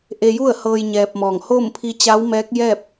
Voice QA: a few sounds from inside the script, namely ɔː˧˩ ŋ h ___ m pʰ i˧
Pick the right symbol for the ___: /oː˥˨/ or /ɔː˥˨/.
oː˥˨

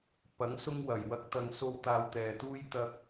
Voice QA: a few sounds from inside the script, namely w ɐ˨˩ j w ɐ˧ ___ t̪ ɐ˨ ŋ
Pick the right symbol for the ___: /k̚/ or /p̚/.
k̚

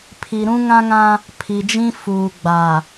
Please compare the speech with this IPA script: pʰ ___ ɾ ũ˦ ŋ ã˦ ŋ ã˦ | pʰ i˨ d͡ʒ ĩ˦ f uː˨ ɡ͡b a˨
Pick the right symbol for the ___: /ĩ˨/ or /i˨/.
i˨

